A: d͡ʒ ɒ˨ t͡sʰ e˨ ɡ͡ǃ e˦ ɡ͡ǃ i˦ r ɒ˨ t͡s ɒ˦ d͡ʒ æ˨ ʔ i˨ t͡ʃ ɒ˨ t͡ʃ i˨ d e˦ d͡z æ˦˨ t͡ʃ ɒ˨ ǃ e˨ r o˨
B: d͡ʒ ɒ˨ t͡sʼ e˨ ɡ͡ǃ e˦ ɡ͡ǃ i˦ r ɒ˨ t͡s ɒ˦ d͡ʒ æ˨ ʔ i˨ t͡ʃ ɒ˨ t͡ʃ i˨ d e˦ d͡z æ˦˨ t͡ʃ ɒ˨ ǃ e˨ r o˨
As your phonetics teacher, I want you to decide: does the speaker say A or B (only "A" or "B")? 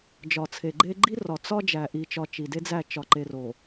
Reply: A